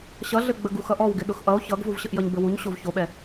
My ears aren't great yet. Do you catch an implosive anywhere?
yes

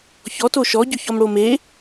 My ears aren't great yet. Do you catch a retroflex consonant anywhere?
yes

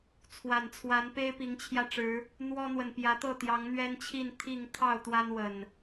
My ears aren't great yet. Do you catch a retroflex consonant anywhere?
yes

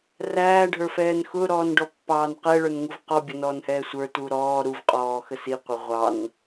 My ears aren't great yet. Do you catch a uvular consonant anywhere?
yes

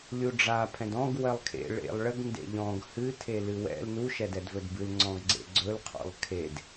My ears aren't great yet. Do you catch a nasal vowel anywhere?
yes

